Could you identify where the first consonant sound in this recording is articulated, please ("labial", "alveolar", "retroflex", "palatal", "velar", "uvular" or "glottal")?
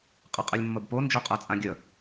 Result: uvular